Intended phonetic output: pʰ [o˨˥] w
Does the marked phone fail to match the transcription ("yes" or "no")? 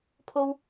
yes